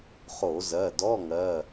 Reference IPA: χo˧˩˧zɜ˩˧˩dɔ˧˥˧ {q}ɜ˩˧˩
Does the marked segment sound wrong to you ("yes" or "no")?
yes